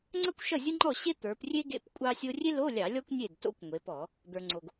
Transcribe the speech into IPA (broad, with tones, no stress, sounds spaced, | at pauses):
ŋ͡ǀ ʌ˥ kʷ ʃ ʌ˥˩ zʲ ə˥ ŋ͡ǃ ɔ˥˩ ɕ e˥ t̪ ə˞˩˧ p rʲ e˥ ɡ ḛ˧˥˧ p kʷʼ ɑ˥ sʲ o˥ rʲ e˥ l o˧˥˧ lʲ ɑ˧˩˧ lʲ ɔ˥ kʷ nʲ e˥˩ d t o̰˥ kʷ ŋʷ e˩˧ p ɔ˧˩˧ | d̪ ə˞˩ ŋ͡ǀ o˩ ɡ